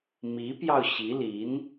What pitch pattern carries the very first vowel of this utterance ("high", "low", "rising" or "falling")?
rising